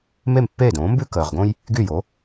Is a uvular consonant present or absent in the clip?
present